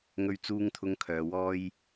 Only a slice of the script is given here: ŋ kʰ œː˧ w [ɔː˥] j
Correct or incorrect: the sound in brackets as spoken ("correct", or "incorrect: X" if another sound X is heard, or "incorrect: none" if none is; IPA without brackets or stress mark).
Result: correct